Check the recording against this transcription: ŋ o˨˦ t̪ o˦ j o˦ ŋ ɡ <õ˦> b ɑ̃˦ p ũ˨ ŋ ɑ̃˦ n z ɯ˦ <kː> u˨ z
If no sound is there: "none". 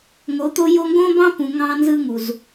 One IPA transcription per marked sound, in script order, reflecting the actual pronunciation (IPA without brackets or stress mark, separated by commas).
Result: õ˦, ŋ